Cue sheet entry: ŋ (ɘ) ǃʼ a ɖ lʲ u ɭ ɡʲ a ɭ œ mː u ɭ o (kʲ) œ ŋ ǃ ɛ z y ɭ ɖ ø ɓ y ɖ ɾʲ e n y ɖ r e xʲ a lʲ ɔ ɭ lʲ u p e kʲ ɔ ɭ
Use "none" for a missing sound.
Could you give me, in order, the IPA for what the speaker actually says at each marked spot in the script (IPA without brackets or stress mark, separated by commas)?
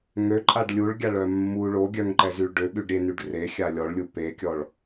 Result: ø, ɡʲ